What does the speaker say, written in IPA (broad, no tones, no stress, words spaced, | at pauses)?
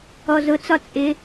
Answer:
ɔzʊt͡sɒ t͡sʼɪ